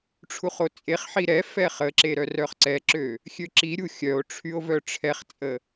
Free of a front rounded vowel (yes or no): no